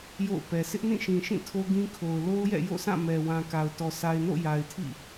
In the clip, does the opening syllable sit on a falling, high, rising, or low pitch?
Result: falling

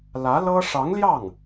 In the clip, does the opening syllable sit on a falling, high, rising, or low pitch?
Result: rising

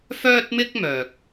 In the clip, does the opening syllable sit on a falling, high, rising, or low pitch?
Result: high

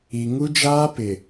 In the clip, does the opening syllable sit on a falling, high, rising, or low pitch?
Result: low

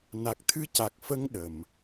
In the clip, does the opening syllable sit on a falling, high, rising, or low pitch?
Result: low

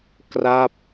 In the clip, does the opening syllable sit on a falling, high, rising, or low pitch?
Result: falling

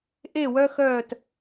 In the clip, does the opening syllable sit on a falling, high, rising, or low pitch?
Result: falling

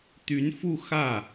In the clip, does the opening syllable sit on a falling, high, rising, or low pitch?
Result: rising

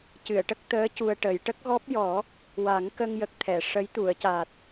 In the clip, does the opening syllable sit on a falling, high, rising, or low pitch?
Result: low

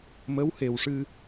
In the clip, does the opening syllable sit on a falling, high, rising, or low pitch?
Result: rising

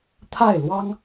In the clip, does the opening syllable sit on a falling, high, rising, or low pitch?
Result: falling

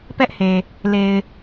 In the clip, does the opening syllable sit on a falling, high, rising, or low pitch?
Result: high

